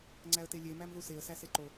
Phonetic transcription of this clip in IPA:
ŋ͡ǀ æ ə̯ t e lʲ e m æ m ð u s e ə̯ s æ s e ǃ o

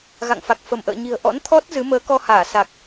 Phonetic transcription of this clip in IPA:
ɣ a̰˧˨ ŋ f a˨˩ k̚ f ə˧˩ m ʔ ə̰ː˧˨ ɲ i̤˨˩ ə̯ ʔ ɔ̰˧˥ n t̪ʰ ɔ˦˥ t̚ z ɨ˨˦ m əː˨˦ k ɔ˧ h aː˧˩ s a˨˩ k̚

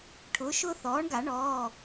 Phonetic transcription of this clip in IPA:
ʈʰ ʊː˩˥ ʃ ʊː˥ θ ɔː˩˥ ɳ ɡ a˨˩˦ ɳ ɔː˩˧˩

